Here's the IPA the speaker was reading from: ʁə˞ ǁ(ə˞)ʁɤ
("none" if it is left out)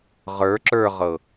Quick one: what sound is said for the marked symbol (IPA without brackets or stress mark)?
ə˞